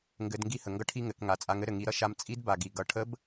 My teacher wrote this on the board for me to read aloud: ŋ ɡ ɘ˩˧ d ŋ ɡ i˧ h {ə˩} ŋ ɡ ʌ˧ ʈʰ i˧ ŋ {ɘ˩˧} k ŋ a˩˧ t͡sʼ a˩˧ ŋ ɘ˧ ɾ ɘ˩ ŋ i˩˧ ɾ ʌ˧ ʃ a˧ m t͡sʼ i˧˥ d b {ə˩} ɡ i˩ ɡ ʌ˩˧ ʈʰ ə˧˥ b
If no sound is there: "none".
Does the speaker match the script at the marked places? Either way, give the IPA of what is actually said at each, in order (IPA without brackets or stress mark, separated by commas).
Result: ə˩, ɘ˩˧, a˩